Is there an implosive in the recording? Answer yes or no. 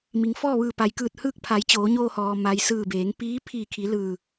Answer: no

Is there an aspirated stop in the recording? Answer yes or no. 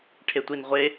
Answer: yes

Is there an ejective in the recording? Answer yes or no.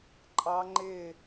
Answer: yes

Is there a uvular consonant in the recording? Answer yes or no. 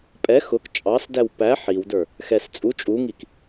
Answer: no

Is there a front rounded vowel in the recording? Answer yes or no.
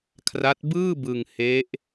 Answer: no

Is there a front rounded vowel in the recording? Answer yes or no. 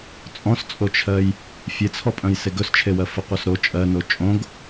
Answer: yes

